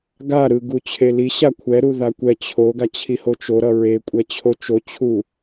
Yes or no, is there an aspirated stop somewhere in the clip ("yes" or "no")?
yes